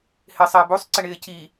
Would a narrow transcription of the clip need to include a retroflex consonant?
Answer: yes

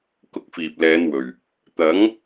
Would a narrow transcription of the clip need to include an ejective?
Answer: no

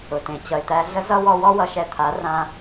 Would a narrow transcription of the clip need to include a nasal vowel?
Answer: yes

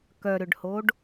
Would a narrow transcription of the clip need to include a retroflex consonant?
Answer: yes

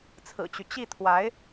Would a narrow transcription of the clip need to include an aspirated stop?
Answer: yes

